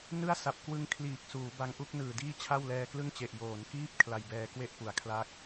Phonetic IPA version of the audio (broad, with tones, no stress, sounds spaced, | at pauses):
n ɯ˥˩ a̯ s a˨˩ p̚ k w ɯ˦˥ ŋ kʰ l iː˨˩ k̚ s uː˩˦ b a˦˥ ŋ ʔ u˦˥ k̚ n ɯː˨˩ d iː˥˩ t͡ɕʰ a˥˩ w l ɛː˧ k l ɯ˥˩ ŋ t͡ɕ e˨˩ ʔ j oː˩˦ n k iː˥˩ p̚ kʰ l a˧ j b ɛː˧ k w e˥˩ ʔ p u˩˦ a̯ kʰ l a˦˥ k̚